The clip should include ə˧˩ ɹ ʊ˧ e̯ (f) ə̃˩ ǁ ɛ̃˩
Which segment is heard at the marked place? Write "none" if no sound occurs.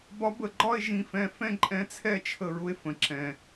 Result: f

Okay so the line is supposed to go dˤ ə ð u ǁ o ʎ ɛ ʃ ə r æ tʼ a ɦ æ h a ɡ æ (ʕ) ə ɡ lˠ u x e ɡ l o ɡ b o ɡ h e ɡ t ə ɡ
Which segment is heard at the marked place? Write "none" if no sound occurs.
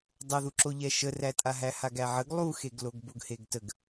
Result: ʕ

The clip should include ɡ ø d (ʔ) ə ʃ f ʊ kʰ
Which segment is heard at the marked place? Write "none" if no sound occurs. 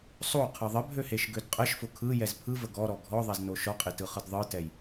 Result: qʼ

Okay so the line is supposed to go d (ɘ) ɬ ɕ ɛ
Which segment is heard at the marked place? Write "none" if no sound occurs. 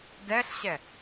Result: ɛ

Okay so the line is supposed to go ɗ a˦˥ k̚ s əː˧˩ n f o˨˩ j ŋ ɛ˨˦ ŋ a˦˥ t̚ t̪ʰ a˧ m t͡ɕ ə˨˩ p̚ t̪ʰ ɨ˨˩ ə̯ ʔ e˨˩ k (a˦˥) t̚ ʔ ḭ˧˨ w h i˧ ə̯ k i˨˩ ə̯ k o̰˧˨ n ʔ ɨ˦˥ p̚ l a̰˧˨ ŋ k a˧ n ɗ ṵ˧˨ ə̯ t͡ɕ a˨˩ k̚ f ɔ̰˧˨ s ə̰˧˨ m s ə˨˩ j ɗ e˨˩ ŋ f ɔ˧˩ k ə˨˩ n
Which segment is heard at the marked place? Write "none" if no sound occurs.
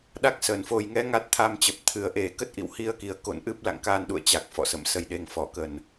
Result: ə˦˥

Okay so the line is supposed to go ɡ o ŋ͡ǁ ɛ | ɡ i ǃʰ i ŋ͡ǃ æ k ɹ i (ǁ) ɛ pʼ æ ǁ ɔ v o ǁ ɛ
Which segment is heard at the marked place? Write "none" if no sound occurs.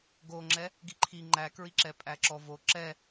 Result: ǁ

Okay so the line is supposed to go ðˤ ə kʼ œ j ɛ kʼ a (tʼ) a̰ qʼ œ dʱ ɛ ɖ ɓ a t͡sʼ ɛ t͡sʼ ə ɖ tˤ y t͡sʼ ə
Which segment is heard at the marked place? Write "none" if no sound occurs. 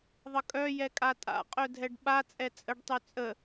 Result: tʼ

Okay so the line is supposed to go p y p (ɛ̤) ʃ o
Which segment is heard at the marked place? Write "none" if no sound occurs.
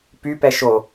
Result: ɛ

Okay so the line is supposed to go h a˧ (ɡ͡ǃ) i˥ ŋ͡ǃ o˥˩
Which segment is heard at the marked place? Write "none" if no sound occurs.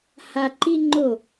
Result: ǃ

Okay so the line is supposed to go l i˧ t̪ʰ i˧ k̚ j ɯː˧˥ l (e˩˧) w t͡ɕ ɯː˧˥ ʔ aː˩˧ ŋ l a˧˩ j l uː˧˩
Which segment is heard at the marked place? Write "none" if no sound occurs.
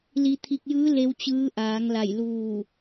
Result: e˧˥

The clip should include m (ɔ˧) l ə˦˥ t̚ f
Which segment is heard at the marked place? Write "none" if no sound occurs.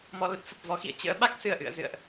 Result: ɔ˧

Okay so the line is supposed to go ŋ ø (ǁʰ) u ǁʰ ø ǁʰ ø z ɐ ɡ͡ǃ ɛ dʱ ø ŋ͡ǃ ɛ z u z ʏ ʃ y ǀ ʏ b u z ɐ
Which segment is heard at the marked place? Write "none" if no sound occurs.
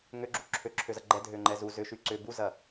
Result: ɡ͡ǁ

